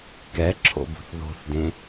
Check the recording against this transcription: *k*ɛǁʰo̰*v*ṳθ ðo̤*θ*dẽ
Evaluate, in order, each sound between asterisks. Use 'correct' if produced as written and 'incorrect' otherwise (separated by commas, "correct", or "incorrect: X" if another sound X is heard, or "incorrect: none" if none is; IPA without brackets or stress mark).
correct, incorrect: b, correct